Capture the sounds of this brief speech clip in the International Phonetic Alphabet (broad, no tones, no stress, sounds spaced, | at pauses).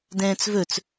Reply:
d ɛ̃ː t͡s v ɵ t͡s